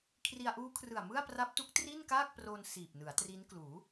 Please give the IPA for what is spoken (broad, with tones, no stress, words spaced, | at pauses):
kʰri˧a̯ʔuː˦˥kʰrɯ˨˩a̯ mɯ˥˩a̯pra˦˥p̚tu˦˥k̚ tri˥˩nkaː˥˩k̚proː˧n siː˨˩p̚nɯ˩˦a̯tri˦˥n kluː˩˦